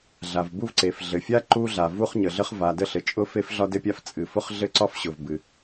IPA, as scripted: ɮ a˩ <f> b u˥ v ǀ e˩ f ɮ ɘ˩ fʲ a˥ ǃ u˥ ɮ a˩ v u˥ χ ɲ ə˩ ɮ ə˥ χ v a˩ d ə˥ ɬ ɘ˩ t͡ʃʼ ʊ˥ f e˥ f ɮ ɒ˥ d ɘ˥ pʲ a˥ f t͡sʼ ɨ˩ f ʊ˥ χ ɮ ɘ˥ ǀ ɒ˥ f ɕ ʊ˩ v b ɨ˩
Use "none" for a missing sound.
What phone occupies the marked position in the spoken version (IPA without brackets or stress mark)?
v